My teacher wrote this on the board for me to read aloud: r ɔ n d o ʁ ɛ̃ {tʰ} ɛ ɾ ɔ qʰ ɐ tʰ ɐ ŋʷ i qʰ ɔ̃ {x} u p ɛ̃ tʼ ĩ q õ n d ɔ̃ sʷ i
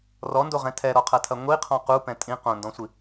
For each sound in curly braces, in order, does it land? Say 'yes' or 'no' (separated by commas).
yes, no